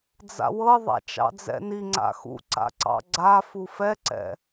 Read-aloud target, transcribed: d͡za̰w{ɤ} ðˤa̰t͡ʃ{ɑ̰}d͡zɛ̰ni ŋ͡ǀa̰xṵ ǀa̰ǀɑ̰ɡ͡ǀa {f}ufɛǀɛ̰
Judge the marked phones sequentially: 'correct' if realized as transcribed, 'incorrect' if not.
correct, correct, correct

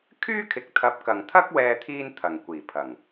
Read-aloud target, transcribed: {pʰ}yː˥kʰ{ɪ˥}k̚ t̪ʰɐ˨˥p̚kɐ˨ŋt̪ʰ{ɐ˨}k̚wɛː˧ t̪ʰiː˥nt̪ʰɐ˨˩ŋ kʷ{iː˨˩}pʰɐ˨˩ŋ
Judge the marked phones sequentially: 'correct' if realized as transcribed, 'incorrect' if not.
incorrect: kʰ, incorrect: ɪ˨˥, incorrect: ɐ˥, correct

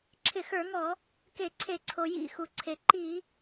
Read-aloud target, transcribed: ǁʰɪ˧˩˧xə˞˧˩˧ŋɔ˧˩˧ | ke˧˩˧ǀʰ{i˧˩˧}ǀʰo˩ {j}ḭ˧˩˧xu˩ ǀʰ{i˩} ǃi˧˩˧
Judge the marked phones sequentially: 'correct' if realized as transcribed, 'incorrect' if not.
incorrect: e˧˩˧, correct, incorrect: e˩

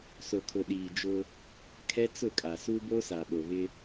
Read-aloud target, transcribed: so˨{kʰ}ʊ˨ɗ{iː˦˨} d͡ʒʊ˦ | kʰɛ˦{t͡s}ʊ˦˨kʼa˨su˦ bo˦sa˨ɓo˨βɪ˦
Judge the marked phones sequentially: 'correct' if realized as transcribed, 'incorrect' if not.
correct, incorrect: iː˨, correct

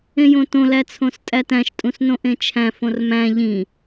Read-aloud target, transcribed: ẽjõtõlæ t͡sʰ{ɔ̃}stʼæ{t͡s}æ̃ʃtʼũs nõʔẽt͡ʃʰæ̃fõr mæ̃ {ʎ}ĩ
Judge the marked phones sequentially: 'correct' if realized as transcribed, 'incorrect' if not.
incorrect: õ, incorrect: t, correct

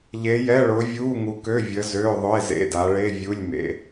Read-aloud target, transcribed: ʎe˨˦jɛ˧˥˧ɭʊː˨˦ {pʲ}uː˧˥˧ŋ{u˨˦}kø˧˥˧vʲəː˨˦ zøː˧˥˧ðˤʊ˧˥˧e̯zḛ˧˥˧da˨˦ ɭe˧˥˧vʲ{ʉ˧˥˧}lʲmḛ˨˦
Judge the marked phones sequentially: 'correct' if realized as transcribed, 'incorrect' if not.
incorrect: vʲ, correct, incorrect: u˧˥˧

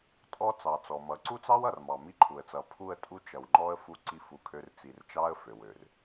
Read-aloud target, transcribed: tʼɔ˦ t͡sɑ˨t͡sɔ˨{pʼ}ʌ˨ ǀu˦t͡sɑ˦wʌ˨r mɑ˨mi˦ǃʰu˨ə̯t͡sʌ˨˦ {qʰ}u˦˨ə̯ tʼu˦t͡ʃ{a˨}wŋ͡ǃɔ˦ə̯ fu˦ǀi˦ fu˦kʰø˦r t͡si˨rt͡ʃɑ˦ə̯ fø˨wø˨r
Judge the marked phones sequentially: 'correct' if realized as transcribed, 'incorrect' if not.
incorrect: m, incorrect: pʰ, incorrect: ʌ˨

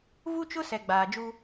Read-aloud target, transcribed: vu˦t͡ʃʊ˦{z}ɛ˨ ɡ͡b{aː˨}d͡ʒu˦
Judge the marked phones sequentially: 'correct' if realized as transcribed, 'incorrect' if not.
incorrect: s, correct

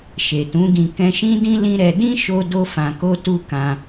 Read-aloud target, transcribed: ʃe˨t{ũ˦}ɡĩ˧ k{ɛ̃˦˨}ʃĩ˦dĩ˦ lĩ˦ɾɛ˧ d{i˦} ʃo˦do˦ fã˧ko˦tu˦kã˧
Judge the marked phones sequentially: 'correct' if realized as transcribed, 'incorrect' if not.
incorrect: ũ˨˦, incorrect: ɛ̃˧, incorrect: ĩ˦

